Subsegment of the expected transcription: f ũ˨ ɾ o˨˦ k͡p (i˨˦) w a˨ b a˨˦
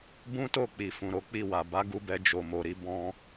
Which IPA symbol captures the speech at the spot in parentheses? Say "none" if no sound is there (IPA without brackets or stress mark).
i˦˨